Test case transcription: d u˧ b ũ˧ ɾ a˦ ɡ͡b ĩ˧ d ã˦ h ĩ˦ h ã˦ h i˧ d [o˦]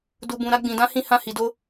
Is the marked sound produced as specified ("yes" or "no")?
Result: yes